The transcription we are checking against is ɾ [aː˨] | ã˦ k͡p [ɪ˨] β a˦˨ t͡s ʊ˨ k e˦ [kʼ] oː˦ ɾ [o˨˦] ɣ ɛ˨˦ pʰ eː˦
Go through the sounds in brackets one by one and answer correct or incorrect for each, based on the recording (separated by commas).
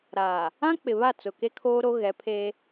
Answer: correct, correct, incorrect, incorrect